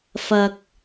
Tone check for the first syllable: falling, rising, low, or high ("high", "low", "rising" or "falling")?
low